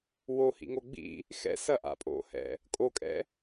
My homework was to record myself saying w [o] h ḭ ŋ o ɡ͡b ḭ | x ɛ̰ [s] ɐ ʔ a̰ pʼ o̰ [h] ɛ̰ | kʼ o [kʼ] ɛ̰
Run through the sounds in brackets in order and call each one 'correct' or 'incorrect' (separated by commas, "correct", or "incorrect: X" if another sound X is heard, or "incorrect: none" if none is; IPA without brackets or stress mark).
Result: correct, correct, correct, correct